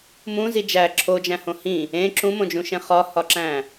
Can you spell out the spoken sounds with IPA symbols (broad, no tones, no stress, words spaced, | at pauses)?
mũzi d͡ʒæ ǁʰod͡ʒæ̃hõ hĩ | ẽ ǁũmõd͡ʒũʃẽ χɒhɒǁæ̃